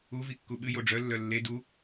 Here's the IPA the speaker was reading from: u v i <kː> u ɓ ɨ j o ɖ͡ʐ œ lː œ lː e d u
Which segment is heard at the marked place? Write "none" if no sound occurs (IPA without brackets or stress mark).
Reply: kː